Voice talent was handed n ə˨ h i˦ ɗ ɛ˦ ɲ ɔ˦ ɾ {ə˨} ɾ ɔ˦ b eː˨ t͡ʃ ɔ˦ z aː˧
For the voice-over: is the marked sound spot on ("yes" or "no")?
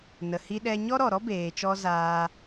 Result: no